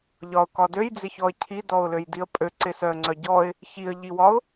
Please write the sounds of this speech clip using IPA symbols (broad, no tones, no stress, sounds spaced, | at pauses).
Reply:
ʎ ɒ ʊ̯ k ɒ d ø j d͡z ɪ ç ɔ ə̯ cʰ i d ɔ ʊ̯ l ø j d i ə̯ pʼ ø ǀ ɪ s œ ə̯ ŋ͡ǀ œ ɟ ɔ ɪ̯ | ç i ə̯ ʎ i w ɒ ʊ̯